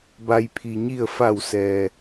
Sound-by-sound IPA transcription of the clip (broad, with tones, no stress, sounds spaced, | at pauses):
b a˩ j pʰ i˩ ɲ i˧˩ ə̯ f a˧˩ w s ɛː˩